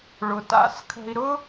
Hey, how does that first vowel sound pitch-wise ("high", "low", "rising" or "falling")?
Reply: low